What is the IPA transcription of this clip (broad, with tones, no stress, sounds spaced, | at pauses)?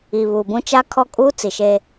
i˨ β uː˨ b ũ˦ t͡ʃ a˦ kʰ ɔ˦ kʼ uː˦ t͡s i˨ ʃ e˦